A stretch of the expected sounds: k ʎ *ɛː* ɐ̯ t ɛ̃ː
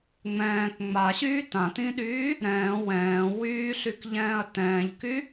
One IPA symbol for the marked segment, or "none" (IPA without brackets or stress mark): ɛ̃ː